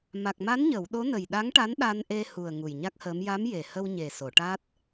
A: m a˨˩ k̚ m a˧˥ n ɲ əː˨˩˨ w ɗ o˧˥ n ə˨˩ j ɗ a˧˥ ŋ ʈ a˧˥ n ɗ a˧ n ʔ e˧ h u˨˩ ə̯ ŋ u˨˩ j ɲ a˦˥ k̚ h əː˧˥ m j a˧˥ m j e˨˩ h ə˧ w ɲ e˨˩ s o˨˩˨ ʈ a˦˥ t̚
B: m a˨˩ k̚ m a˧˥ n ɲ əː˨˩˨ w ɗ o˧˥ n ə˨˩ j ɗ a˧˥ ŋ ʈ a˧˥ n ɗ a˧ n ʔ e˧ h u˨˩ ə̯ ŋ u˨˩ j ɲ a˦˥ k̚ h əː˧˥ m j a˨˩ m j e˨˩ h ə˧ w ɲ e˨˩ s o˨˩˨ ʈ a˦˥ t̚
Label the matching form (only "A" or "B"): A